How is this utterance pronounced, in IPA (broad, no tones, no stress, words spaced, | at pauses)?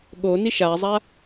ɠoni ʃazˤa